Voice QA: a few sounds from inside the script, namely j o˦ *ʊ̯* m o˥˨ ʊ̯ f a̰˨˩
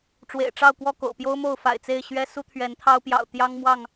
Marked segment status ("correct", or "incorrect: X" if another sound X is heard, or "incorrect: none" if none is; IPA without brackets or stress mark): correct